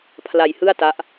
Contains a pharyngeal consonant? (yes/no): no